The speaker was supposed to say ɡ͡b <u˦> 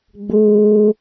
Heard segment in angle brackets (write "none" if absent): uː˦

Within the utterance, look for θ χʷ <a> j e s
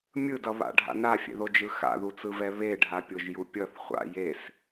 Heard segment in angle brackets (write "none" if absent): a̰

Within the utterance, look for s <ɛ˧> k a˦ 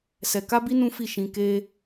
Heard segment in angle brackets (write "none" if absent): ɛ˧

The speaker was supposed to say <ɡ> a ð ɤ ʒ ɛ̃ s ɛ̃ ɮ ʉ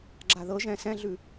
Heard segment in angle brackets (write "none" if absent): ɡ͡ǁ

